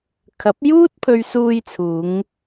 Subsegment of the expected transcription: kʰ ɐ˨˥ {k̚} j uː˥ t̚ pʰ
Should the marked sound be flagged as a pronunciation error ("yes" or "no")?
yes